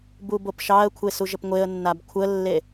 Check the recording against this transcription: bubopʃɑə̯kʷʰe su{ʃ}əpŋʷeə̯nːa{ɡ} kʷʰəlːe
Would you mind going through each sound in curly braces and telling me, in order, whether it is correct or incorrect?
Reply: incorrect: ʒ, incorrect: b

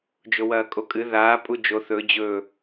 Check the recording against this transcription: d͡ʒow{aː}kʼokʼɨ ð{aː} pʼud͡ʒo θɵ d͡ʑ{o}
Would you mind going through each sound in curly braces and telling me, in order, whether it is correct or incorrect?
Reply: incorrect: ɐː, correct, incorrect: ɵ

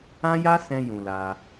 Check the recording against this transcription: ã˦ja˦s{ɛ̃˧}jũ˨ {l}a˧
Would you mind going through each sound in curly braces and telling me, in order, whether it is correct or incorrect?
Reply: correct, correct

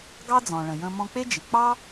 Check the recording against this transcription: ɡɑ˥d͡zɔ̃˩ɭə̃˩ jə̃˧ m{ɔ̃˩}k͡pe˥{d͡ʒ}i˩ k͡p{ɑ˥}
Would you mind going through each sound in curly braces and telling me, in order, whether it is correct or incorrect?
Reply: incorrect: ɔ̃˧, correct, correct

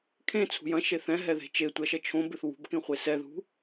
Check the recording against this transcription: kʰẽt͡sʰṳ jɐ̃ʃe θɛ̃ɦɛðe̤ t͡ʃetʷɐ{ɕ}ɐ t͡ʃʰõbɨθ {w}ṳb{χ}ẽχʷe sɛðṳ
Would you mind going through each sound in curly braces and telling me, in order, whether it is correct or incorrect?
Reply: incorrect: ʃ, correct, incorrect: k

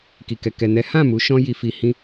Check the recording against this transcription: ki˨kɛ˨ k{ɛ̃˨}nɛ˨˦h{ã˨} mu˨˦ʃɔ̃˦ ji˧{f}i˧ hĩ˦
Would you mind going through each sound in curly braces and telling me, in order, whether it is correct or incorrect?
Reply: incorrect: ɛ˨, incorrect: ã˦˨, correct

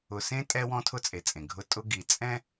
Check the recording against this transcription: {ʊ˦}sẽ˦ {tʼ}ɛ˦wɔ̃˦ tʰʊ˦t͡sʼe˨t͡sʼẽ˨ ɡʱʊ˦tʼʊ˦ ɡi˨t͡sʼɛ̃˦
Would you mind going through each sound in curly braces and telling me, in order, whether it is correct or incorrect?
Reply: incorrect: ʊ˨, correct

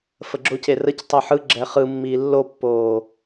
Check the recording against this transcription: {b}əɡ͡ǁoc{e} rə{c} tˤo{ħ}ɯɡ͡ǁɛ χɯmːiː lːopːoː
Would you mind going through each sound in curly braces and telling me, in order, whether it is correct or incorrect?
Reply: incorrect: f, correct, correct, correct

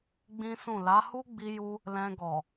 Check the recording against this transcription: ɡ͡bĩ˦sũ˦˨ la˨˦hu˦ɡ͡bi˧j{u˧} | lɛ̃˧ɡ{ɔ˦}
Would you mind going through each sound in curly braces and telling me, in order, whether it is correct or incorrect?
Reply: correct, incorrect: ɔ˨

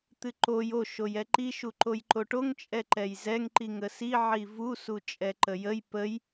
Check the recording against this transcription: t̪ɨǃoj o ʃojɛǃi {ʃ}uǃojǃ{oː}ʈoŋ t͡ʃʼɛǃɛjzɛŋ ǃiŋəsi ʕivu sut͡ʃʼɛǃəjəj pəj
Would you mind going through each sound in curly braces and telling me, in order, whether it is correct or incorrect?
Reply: correct, incorrect: o

